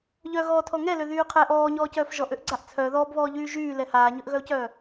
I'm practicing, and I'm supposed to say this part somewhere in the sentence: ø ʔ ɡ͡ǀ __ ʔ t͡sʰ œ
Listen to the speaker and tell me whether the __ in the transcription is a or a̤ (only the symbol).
a